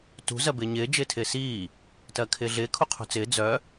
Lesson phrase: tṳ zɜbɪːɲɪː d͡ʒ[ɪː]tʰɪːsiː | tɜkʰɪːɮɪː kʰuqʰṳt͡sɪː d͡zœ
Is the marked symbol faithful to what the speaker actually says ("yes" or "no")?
yes